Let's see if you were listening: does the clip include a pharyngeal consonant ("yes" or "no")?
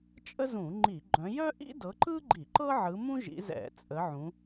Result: yes